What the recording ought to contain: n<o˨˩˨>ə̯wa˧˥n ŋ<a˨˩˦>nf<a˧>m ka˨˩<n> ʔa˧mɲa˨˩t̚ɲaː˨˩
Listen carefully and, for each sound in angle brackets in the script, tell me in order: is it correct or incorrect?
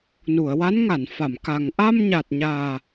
incorrect: u˨˩˨, incorrect: a˨˩˨, incorrect: a˨˩˨, incorrect: ŋ

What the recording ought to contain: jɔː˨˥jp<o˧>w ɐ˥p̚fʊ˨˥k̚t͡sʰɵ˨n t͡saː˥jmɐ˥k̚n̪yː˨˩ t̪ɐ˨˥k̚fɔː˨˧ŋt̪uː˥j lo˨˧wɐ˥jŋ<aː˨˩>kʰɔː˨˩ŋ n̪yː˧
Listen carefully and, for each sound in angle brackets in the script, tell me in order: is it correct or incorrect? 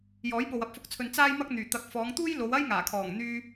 incorrect: o˨, correct

